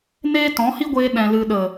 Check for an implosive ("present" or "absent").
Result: present